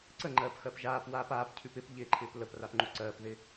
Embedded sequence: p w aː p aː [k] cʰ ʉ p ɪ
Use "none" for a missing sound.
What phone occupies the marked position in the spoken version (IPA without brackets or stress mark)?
p